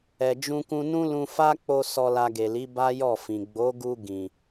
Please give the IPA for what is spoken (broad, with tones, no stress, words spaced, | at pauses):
ɛ˨d͡ʒũ˧kũ˧nũ˦ lũ˧fa˦k͡po˧ sɔ˧la˧ɡe˨li˨˦ ba˦jɔ˦˨fĩ˨ ɡ͡bo˨˦ɡu˧ ɡĩ˨